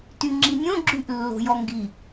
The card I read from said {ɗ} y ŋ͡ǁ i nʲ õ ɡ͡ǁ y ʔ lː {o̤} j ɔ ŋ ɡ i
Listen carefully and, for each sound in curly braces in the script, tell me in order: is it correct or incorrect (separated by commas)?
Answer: incorrect, correct